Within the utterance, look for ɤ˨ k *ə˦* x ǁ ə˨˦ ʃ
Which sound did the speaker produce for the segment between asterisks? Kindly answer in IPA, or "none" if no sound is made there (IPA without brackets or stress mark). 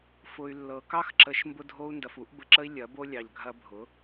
ɑ˦